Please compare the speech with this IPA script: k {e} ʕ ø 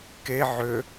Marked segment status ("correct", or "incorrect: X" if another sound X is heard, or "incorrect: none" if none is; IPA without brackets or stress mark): correct